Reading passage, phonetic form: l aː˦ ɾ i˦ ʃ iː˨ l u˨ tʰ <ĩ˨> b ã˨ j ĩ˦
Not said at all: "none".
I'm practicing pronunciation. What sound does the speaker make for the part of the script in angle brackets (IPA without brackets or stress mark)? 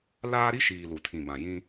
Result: ĩ˨